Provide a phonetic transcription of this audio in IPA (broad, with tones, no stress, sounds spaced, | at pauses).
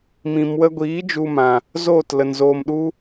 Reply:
m ĩ˨ m w ə˧ ɡʷ iː˨˦ d͡ʒ u˧ m ã˨ | z oː˦˨ t l ə˨ n z oː˧ m ɗ u˦